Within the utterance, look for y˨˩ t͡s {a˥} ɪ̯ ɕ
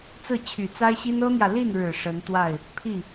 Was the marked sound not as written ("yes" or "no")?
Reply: no